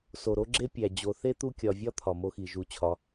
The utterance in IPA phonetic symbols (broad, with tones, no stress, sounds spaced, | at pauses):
s o˩ ɾ o˥ ɡ͡ǁ e˥ pʲ æ˩ d͡ʑ o˨ θ e˥ t̪ u˦ kʲ ɒ˨ vʲ ɒ˥ t̪ʰ ɒ˩ m o˦ x i˩ ʒ u˨ t͡ɕʰ ɒ˨